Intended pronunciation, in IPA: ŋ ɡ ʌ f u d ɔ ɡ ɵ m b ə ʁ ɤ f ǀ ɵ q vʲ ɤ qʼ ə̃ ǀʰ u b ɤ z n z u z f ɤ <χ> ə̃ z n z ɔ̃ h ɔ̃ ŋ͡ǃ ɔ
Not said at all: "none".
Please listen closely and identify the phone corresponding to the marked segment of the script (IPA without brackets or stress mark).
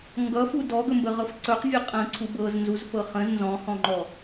χ